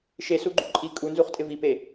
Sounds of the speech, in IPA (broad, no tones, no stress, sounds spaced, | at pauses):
ʃ e s u ɡ͡ǃ u ǃʼ i kʼ u n z u χ tʼ ɪ v i p e